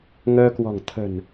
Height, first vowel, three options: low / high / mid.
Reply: mid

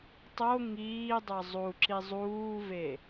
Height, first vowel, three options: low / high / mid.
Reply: mid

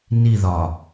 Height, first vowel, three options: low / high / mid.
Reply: high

